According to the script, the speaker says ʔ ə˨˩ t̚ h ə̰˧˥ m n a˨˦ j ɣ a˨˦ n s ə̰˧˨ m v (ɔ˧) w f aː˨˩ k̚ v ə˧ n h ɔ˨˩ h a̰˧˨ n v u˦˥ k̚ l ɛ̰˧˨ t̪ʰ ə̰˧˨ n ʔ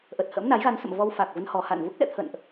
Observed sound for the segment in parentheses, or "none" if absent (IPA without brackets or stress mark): ɔ˧